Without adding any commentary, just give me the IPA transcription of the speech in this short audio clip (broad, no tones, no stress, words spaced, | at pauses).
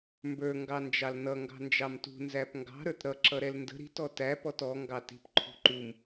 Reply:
mbə˞ ŋɡɑnd͡ʒɑlnʌ ŋɡɑ̤nd͡ʒɑmtṳ nzæpŋɡɑ̤ ɾə˞tɾʌ ǁʌɾɛlndə̤ ɾi̤t ɔtæ pɔtɔ ŋɡɑti̤p ǃʰṳǃum